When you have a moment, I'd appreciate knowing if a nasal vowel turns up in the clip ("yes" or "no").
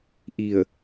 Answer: no